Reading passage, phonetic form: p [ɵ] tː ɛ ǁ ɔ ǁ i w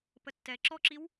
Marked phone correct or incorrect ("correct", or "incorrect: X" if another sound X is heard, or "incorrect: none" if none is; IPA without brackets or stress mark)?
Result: incorrect: ə